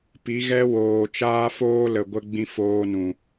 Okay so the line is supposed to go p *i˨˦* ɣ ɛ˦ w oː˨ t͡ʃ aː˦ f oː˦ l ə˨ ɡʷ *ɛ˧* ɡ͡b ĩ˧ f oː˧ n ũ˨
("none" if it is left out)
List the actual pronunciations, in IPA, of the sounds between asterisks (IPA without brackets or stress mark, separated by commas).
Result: i˨˦, ə˧